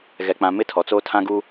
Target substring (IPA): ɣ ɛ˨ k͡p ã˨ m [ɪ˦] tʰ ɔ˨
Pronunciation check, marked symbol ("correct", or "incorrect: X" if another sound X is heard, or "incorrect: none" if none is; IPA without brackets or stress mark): correct